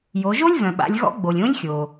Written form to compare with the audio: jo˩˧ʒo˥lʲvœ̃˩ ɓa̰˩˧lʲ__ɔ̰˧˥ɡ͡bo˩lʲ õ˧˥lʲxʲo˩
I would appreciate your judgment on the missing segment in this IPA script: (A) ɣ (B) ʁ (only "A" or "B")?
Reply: A